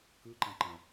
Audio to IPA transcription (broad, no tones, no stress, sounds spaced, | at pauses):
k ɯ ǃ ã ǃ ã